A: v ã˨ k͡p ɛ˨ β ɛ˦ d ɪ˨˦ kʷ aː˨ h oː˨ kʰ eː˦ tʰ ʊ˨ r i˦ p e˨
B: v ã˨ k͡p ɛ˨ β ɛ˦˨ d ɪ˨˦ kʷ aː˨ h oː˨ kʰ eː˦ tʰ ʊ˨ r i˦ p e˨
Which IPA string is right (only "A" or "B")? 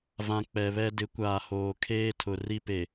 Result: A